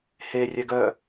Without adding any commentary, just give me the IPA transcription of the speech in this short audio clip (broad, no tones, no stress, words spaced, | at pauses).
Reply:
herʲɛ ɡœ